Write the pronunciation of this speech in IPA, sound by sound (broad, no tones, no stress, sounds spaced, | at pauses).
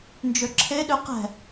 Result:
n d͡ʒ ø ǁʰ e ɗ ø q ɛ̤